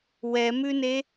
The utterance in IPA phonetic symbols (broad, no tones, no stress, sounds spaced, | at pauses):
w ɛ m ʉ n e